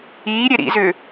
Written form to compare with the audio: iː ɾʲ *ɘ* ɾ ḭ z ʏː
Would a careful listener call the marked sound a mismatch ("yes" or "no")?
yes